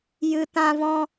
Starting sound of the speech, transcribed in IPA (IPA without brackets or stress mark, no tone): j